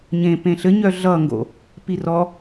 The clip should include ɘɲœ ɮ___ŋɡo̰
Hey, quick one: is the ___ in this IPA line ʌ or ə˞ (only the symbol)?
ʌ